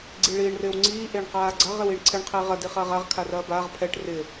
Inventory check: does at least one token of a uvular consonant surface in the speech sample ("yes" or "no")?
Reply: yes